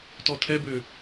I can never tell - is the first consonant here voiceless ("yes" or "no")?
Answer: yes